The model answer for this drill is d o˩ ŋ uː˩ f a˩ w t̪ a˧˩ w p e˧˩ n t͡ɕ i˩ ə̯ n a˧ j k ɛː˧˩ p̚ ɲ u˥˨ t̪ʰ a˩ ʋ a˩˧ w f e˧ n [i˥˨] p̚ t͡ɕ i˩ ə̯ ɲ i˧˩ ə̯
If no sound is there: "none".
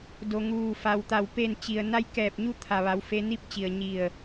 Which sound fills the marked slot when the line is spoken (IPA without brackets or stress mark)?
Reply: i˥˨